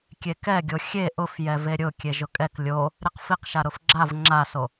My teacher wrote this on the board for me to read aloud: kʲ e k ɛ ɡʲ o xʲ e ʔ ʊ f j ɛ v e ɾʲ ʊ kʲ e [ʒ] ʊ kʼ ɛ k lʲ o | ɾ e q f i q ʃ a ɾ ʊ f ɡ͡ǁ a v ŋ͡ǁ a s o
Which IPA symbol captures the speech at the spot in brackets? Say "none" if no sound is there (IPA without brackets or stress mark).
ʒ